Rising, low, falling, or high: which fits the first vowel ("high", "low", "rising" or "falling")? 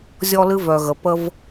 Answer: high